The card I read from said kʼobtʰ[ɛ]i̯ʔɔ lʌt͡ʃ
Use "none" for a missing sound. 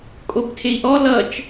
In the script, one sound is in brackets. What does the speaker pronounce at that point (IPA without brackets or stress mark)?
e